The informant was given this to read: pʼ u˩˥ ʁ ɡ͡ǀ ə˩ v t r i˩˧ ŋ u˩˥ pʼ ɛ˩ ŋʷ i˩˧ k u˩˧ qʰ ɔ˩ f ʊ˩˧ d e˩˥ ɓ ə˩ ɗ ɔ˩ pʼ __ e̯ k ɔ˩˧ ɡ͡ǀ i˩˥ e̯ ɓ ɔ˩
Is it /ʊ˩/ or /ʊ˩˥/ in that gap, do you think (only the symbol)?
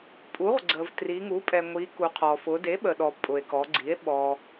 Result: ʊ˩